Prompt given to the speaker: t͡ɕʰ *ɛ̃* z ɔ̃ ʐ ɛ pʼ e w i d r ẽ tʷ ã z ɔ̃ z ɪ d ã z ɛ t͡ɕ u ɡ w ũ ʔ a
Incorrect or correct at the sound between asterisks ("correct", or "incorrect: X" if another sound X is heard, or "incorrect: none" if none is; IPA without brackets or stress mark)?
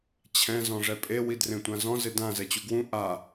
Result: correct